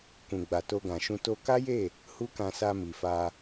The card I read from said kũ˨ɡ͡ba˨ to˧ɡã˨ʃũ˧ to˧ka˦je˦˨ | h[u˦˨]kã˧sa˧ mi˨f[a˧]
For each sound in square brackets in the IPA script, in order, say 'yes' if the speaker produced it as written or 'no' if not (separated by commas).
no, yes